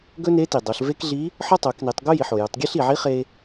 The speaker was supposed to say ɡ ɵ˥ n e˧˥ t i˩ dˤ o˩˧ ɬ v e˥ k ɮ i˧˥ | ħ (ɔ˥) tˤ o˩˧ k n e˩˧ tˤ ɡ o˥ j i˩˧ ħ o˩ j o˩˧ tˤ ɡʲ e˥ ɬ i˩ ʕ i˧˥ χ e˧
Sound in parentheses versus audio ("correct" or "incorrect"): correct